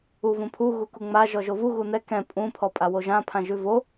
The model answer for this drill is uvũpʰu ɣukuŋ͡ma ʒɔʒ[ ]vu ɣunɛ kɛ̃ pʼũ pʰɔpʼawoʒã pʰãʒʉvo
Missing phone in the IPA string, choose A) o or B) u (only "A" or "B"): A